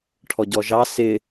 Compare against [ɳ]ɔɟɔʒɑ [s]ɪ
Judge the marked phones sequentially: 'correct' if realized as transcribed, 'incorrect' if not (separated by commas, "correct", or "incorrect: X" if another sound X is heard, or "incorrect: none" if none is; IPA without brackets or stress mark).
incorrect: ʈʰ, correct